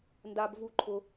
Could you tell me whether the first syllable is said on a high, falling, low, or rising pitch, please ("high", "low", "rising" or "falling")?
high